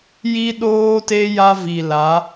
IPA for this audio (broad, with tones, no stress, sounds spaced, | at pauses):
j i˦ ɗ oː˦ t e˦ j a˦ v i˨ l a˨˦